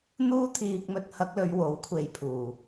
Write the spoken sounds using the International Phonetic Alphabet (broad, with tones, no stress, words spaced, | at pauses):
n̪uː˥t̪ʰiː˧k̚ mɵ˧t̚hɐ˧k̚lɵ˨˧ɥ wo˨˥wkʷʰe˨˧jpʰuː˨˩